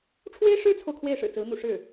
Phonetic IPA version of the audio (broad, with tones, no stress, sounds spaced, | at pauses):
ʈ͡ʂʰ w e˥ ɪ̯ ʂ ɻ̩˥ t͡sʰ o˨ ʊ̯ kʰ w e˥˩ ɪ̯ ʂ ɻ̩˨˩ t͡s ɹ̩˧˥ n̪ ṵ˨˩ ʂ ɻ̩˥˩